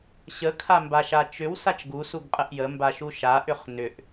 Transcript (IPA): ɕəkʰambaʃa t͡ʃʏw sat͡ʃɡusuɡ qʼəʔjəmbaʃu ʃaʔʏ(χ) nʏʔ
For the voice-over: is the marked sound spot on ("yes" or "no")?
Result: yes